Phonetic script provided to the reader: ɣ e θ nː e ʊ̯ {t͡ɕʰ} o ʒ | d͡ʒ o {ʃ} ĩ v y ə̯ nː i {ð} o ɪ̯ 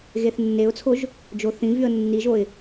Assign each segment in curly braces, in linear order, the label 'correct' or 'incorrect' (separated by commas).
incorrect, incorrect, incorrect